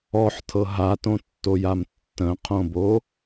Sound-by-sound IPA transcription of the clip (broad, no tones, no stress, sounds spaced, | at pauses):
ɔ ħ tʰ ɤ ɦ a t õ tː o j a m tː ə̃ qʰ õ b o